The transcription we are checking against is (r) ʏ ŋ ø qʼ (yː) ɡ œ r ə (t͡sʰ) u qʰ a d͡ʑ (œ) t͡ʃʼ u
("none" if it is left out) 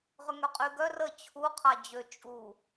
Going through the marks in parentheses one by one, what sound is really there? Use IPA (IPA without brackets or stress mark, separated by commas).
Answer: ʁ, y, t͡ɕʰ, ø